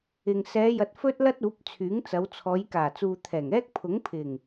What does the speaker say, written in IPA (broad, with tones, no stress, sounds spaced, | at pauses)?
ɪ˨ ŋ s ɛː˨˧ j ɐ˨ t̚ f ɵ˥ t̚ l ɐ˥ t̚ uː˨˥ p̚ t͡sʰ yː˨˥ ŋ t͡s ɐ˨˧ w t͡sʰ ɔː˨˧ j k aː˨˩ t͡s uː˨ t̪ʰ ɛː˨˩ ŋ ɛː˥ k̚ pʰ ʊ˨˥ ŋ pʰ ɪ˨˩ ŋ